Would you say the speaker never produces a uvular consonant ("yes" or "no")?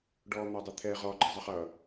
no